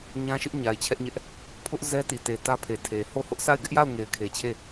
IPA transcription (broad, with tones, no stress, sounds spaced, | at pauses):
ɲ ã˦ ʃ ɪ˦ ʔ ɲ a˨ ɪ̯ t͡ɕʰ ɛ˦ ʔ ɲ ɛ˦ ʔ | pʰ ʊ˦ ʔ z ɛ˦ t i˨ t e˨ t ä˦ pʰ e˨ tʰ e˨ h o˦˨ h ʊ˦ ʔ s a˦˨ ɪ̯ ɡ ɪ˦ ʔ j a˦˨ ʊ̯ ŋ e˨ ɪ̯ kʰ e˨ t͡ɕʰ e˦˨